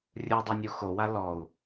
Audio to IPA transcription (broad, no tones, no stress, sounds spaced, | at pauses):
rʲ u dˤ ɛ nʲ u x o w a l ɔ u̯